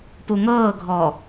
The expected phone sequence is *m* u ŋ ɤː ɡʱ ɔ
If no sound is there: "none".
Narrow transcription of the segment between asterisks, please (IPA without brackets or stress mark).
p